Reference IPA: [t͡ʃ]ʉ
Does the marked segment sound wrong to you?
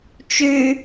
no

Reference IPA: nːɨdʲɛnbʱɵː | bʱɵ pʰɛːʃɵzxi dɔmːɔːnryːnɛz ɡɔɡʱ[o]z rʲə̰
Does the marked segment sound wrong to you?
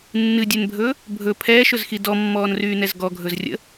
yes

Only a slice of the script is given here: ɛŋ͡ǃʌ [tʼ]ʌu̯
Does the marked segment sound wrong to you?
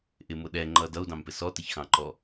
yes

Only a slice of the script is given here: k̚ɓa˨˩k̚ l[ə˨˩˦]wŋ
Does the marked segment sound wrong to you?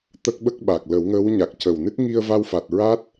no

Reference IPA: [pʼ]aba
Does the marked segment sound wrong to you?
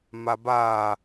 yes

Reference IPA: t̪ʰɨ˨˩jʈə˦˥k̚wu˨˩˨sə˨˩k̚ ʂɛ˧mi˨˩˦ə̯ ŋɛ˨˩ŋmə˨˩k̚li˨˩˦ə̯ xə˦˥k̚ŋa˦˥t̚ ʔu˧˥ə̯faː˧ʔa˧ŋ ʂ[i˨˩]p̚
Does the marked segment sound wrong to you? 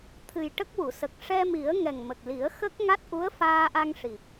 no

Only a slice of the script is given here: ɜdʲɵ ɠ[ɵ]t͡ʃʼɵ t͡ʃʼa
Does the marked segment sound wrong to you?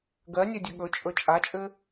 no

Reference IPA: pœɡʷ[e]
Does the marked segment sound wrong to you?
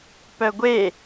no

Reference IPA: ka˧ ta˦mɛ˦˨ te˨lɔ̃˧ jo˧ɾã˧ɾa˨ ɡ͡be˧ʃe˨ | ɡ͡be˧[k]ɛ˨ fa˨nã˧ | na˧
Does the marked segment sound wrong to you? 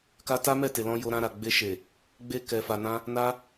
no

